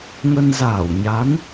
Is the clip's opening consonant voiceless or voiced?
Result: voiced